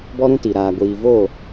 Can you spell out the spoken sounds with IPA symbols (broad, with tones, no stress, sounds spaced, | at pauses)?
b ɔ˦ ɾ ũ˦ t i˨ ɾ aː˨ ɡʷ iː˨ v oː˦˨